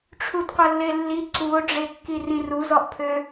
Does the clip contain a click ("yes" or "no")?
yes